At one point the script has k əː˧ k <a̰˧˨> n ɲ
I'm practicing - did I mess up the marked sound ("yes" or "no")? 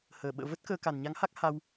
yes